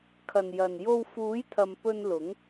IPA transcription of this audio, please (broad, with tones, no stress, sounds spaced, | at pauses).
kʰ ɐ˨˩ n j ɐ˨˩ n j o˧ w f uː˨˥ j t̪ʰ ɐ˨ m p ɵ˧ n l ʊ˨˥ ŋ